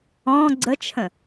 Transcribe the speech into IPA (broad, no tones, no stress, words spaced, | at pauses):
ɔ̃ ɡ͡ǀət͡ʃʰə̃